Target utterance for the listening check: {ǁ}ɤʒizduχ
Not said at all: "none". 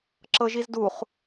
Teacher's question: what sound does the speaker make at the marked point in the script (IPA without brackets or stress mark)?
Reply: ǁ